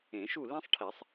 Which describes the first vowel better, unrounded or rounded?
unrounded